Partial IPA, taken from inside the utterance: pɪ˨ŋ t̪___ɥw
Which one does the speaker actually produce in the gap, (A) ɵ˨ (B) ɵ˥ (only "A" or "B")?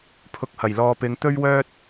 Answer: B